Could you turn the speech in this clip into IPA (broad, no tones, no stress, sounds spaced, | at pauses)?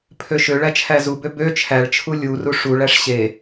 pʰ ø ʃ ø ɭ æ t͡ʃʰ æ z u b ø b ø t͡ʃʰ æ ɭ t͡ʃʰ u lʲ u r u ʂ u ɭ æ ʂ ɕ e